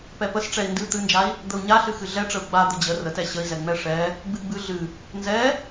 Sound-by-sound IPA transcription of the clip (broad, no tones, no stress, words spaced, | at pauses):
pɛpəs ʈ͡ʂɛi̯ndɨ t̪ɨnd͡ʒai̯ | d̪əu̯ɲaɬɨ xɨɮɛʈ͡ʂəu̯ ɡ͡ba d̪əd͡ʑə rətɛ ɕəi̯zɛŋ͡mɛ ʂɛ | ɡ͡bɨɡ͡bɨ ɮɨ | nzɛ